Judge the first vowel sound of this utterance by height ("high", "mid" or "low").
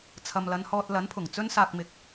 low